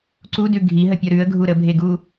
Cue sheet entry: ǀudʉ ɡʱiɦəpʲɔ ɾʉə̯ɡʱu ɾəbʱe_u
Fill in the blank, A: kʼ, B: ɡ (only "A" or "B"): B